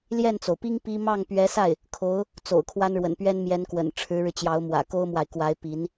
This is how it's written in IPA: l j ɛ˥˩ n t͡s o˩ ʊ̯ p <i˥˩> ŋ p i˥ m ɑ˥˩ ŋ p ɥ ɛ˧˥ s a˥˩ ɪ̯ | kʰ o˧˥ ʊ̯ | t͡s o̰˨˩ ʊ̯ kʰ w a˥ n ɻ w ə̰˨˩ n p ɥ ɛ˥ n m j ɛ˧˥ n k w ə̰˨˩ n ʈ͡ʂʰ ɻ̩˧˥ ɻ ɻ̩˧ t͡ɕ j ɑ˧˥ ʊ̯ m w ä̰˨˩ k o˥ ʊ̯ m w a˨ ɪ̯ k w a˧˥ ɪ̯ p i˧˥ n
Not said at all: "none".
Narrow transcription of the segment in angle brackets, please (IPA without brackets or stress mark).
i˥